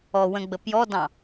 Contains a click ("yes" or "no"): no